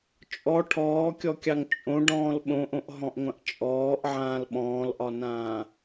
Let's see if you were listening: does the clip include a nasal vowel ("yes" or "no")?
yes